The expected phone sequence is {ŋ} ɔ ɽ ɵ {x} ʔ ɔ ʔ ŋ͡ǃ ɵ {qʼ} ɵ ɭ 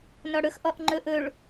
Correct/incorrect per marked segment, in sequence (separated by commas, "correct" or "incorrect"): incorrect, correct, incorrect